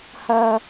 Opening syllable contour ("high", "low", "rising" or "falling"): high